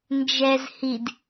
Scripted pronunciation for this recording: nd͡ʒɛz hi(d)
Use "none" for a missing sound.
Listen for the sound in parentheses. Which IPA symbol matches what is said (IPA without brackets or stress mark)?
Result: d